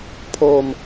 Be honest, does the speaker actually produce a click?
no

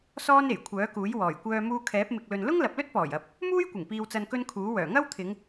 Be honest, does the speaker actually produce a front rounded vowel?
yes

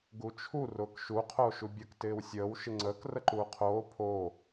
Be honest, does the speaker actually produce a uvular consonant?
yes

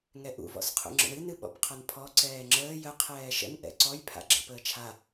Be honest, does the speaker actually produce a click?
yes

